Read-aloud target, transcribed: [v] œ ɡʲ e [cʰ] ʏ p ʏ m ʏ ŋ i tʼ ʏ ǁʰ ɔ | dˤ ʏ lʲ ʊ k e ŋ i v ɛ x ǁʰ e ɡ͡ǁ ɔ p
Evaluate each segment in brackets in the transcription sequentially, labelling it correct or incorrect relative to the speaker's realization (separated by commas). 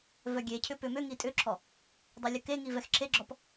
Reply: correct, correct